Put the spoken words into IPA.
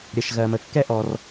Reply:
ɾʲ ə˩ ʃ ɣ ɜ˩ m ə˩ kː ɛ˥ ʔ ɔ˩ r

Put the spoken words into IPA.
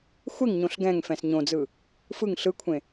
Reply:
xʷ e ŋ ɲ õ ɬ ɡ ɛ̃ ŋ f ɛ̃ s ɲ õ d͡z ɯ | f ɯ ŋ ɬ ɯ kʷʰ ẽ

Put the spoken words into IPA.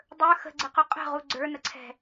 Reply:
dˤ ə˞ x ə̤ ɡ͡ǀ ə q o qʼ ə̤ ʁ u ɡ͡ǀ ə˞ n ə ǀʰ ɛ̤

